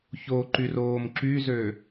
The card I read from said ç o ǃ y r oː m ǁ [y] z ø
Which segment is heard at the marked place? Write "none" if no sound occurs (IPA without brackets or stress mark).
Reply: y